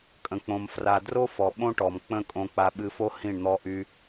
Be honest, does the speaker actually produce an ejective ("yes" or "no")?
yes